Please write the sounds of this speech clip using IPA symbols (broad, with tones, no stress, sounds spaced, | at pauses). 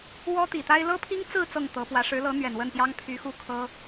w ɔ˥ t̪ i˨˩ t̪ a˥ ɪ̯ l ɤ˥ pʰ i˥ ŋ t͡s ɹ̩˥˧ t͡s ɤ˥˩ ŋ t̪ ɤ˧˥ p w ä˧˥ ʂ ɻ̩˧˥ l ɤ˧˥ n̪ ɥ ɛ˨˩ n w ə˥˩ n p j ɑ˥ ŋ pʰ y˧˥ x u˥˩ kʰ ɤ˥